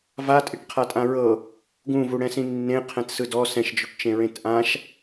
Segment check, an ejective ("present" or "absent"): present